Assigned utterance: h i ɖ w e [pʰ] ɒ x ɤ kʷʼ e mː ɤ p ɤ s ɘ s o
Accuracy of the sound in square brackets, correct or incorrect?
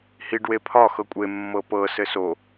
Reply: correct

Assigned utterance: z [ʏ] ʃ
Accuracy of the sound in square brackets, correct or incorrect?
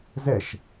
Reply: incorrect: ɛ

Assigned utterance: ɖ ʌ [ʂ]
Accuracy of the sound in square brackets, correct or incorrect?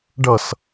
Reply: incorrect: s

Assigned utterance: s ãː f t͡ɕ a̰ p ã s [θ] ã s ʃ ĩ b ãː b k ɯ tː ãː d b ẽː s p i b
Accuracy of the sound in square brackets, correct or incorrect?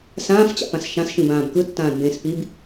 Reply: incorrect: ʃ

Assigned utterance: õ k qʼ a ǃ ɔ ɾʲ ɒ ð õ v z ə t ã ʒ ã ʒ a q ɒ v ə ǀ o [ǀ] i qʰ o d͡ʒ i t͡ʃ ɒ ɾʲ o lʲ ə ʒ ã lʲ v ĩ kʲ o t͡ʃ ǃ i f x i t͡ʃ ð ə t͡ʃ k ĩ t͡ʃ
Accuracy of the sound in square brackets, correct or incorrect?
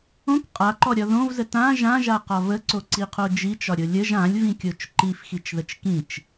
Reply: correct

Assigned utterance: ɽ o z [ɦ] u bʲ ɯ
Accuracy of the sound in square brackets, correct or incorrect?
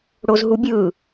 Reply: correct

